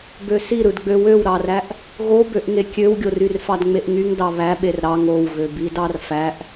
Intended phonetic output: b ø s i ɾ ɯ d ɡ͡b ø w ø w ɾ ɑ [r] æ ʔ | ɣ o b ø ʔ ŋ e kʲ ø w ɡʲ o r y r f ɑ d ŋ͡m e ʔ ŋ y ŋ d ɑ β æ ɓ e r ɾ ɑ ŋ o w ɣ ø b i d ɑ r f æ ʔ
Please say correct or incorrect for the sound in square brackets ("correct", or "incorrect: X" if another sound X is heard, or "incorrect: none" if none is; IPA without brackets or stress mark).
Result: correct